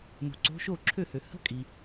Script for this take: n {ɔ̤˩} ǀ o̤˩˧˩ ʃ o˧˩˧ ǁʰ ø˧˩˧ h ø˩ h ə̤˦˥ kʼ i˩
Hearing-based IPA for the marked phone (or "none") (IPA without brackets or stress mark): o̤˩